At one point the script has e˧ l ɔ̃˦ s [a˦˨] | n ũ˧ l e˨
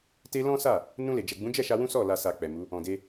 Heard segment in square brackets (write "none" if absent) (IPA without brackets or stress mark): a˦˨